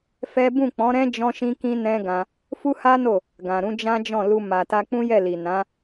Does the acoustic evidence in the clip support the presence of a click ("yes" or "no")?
no